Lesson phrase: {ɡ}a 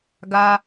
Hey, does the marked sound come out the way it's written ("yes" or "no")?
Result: yes